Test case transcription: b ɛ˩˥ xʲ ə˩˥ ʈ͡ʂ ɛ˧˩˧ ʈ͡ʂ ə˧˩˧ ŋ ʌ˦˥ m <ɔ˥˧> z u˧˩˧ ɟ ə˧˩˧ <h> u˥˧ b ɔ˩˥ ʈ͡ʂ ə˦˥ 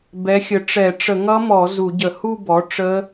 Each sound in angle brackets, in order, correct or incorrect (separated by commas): incorrect, correct